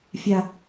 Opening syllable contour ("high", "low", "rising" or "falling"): high